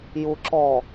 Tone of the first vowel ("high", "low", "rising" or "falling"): low